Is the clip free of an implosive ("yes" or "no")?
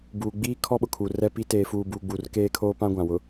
no